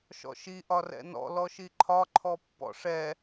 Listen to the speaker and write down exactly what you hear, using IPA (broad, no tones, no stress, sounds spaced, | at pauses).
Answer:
ʃ ɔ̰ ʃ i ʔ ɒ r ɛ̰ n ɔ̰ l ɔ ʃ i ǃʰ ɒ ǃʰ ɔ pː ɔ̰ ʂ ɛ